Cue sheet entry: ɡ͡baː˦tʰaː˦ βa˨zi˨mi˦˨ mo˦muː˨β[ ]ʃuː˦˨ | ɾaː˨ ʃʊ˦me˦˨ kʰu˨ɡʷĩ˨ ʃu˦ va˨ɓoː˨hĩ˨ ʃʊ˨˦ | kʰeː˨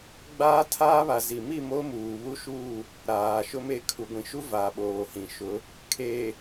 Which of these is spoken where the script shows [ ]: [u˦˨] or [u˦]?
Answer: u˦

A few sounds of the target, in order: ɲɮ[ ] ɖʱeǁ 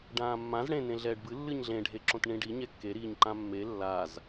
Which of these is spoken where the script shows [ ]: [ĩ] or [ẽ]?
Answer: ẽ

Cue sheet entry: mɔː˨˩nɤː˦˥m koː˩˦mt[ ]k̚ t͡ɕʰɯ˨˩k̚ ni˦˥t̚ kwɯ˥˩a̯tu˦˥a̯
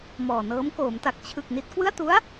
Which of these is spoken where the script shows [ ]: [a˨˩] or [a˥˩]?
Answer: a˨˩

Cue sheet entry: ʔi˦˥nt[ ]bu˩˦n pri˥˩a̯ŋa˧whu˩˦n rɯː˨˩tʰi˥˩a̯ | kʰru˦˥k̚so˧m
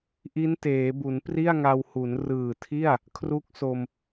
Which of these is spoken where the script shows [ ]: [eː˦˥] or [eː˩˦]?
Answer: eː˩˦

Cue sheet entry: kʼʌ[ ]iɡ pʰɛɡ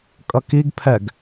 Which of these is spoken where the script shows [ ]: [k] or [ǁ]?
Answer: k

